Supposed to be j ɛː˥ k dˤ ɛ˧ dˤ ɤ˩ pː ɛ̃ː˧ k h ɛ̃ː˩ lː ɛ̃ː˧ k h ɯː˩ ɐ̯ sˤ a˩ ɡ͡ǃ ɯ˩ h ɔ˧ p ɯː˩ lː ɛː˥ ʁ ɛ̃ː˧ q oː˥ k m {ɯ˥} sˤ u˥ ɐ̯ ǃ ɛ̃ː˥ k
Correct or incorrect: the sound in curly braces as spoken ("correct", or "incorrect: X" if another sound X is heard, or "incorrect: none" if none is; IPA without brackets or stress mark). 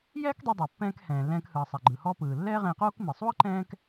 incorrect: ɯ˩